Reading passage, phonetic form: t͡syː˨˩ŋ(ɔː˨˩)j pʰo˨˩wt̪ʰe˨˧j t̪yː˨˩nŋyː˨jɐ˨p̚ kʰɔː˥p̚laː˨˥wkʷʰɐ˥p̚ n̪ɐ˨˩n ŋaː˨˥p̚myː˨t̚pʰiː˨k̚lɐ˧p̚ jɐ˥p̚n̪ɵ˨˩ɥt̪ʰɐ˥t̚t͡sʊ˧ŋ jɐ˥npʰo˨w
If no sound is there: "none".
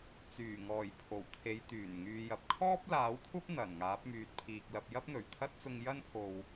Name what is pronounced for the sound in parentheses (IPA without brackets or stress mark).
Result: ɔː˨˩